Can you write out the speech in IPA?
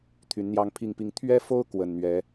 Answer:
t̪ʰy˨˦nn̪jɑ˦ŋpʰi˥˨ŋpi˦ŋ t̪ʰɥɛ˦fo˦ʊ̯ kwə˨˩nn̪ɥɛ˨˦

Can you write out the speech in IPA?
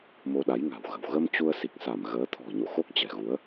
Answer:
mo˧ɗa˨˦jŋa̤˨˩wɣə̤˨˩w ɣə˧m t͡ɕu˧ə̯si˨˩k̚sa˧˩m ɣəː˨˦t̪ʰɔ̤˨˩ɲo̰˧˨ xo˦˥k̚t͡ɕɛ̤˨˩ɣu˨˦ə̯

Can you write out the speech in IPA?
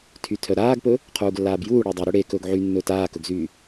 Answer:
tʰytʰœɾaːɡpɵ | qʰuːɡlːaːbjuː ɽedˤyɾɵ ɽe kɵːɡʕynːɵːt aːkɵɡzyː

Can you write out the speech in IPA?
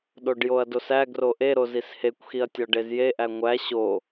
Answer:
ɗoɖjoɐ̯dosæ ɡroʔeɾo zishekʷxiɐ̯tʲɒ ɖezjeʔæ ŋʷæ ɕo

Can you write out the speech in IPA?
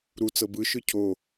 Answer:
ɾu t͡sɤbɯ ʃɯcʰo

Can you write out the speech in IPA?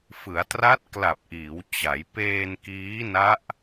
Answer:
fɯ˩˦a̯tra˦˥t̚ kla˨˩p̚ʔiː˩˦wt͡ɕa˩˦j peː˧nkiː˦˥na˦˥ʔ

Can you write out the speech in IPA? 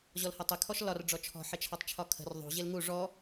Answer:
ʑɔlhɜtˤɪ kʰɔʃlɒr ɖ͡ʐɔt͡ʃʰɔ̤ ħɪt͡ʃʰɒtˤt͡ʃʰɒkʰə̤r ðˤṳ ʑɪlŋu ʐɔ

